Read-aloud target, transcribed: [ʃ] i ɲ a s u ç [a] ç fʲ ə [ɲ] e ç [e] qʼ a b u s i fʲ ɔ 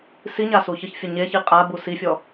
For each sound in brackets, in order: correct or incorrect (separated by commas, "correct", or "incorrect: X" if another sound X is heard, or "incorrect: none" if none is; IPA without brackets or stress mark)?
incorrect: s, incorrect: ə, correct, incorrect: i